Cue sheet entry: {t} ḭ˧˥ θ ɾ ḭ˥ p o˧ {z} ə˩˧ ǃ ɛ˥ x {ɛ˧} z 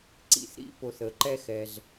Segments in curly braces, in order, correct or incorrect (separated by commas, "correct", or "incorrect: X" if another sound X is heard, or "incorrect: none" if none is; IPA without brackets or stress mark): incorrect: ǀ, incorrect: θ, correct